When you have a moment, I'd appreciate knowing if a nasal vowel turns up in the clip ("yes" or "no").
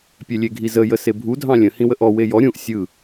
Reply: yes